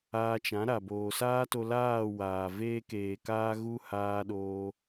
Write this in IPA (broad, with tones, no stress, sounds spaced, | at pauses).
aː˧ t͡ʃ ã˨˦ ɾ a˨ b oː˨ s aː˦ t o˧ l aː˦˨ w aː˨ v eː˧ k eː˨ k aː˧ ɣ u˦ h aː˧ ɗ oː˧